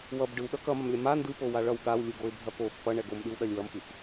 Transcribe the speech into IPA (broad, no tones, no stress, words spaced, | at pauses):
wʌb ɖɯwɗʌ kʌmɐmlʲɐ ma ndɯpowa ɭʌw ɠawlʲɯɡoɪ̯bʱɐ pof pʌɳɛ ɡomɗɯwɗɐlʲ wʌmfɯf